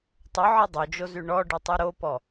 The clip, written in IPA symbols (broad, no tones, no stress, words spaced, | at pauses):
tˤɵʕi dˤod͡ʒozy ɳɔɖʉtˤu ɾopɔ